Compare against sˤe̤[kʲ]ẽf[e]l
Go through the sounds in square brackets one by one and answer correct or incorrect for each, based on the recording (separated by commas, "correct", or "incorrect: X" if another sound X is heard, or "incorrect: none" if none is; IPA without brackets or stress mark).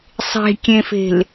correct, incorrect: e̤